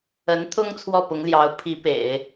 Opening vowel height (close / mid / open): mid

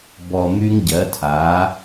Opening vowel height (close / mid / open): mid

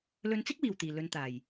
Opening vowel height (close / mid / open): mid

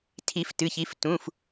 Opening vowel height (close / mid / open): close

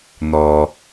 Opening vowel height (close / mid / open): mid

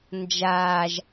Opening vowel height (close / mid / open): open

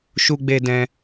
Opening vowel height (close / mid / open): close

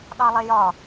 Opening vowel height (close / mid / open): open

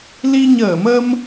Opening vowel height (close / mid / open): close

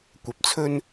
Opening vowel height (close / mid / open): open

